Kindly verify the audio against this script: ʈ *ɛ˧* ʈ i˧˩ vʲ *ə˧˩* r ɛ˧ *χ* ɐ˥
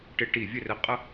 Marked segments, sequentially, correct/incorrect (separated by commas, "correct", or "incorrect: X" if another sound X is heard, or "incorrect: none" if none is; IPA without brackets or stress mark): incorrect: ɪ˧, incorrect: ə˥˧, incorrect: qʼ